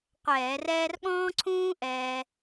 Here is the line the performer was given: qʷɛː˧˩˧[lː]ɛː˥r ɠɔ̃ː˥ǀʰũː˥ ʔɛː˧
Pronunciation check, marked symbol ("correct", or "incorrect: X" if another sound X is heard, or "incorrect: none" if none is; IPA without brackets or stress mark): incorrect: r